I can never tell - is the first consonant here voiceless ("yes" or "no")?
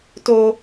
yes